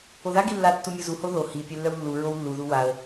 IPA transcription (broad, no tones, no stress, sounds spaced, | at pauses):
o ð a ɡ i lː a tː u mʲ u z u h o ð o h i pʲ œ lː œ w lː u ɹ o w lː u ð u w a ə̯